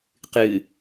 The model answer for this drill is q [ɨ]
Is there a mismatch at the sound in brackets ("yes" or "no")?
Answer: no